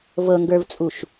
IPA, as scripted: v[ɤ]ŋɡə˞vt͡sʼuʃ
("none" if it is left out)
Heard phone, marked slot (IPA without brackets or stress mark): ɤ